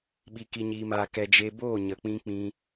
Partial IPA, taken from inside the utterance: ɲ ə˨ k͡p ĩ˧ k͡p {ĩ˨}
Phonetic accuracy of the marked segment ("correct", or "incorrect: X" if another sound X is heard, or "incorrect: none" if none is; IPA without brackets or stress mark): incorrect: ĩ˧